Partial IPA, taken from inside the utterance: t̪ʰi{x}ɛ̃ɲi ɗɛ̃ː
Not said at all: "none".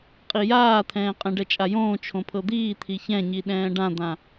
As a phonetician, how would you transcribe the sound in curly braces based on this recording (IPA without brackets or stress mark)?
ç